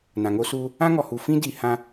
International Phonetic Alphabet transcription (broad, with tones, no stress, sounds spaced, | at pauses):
n ã˨ ŋ o˦ s uː˦ | ã˦ ŋ ɔ˨ h u˨ f ĩ˦ d i˨ h ã˦